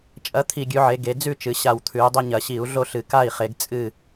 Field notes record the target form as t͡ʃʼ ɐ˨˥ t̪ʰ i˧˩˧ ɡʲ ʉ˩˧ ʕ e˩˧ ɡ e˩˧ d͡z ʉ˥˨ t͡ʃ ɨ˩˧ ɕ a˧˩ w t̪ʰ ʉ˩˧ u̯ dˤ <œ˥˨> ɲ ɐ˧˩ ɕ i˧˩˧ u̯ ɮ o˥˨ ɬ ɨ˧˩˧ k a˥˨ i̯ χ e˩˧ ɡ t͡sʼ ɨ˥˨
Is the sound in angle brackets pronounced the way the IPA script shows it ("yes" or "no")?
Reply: no